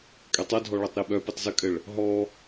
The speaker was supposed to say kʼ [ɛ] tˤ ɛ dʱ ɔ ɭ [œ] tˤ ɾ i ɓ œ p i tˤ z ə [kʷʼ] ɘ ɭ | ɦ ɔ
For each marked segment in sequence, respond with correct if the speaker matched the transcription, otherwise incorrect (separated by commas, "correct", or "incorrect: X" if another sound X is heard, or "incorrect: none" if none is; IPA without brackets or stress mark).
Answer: correct, incorrect: ɛ, incorrect: kʼ